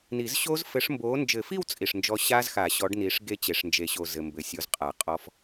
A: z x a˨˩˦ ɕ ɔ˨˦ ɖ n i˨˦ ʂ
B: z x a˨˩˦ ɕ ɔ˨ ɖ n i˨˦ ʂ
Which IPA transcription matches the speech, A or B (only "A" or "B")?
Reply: A